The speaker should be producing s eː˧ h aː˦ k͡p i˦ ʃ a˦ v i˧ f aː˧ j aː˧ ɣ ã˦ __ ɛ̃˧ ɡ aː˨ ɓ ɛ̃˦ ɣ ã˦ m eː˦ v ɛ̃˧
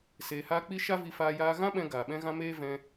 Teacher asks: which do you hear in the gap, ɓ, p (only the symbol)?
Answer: ɓ